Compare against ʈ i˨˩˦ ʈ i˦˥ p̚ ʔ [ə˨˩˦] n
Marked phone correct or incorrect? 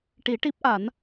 incorrect